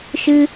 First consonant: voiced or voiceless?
voiceless